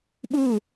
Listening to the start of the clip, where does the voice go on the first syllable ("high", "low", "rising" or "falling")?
falling